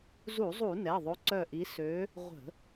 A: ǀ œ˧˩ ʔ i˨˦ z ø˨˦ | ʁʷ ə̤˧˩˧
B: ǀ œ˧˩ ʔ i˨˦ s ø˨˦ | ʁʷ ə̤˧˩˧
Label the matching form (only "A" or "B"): B